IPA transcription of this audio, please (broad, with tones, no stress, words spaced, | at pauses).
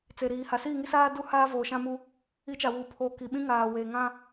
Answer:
t͡se˨ɾiː˨ ha˨siː˦˨ŋi˦saː˦ du˦ haː˦voː˨ʃã˦mu˦ | i˨˦t͡ʃa˨wuː˨pʰoː˨ ki˨ɓĩ˦ ŋaː˨weː˨ŋã˦